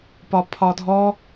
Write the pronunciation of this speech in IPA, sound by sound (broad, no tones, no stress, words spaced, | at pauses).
pɒpʰɒdʱɔ